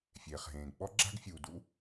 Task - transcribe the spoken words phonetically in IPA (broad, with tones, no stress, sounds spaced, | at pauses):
fʲ eː˩ χ ɦ ẽː˩ ɡ ɓ ɔ˥ ɡ͡ǁ a̤˥ ɡ fʲ uː˩ d ṵ˥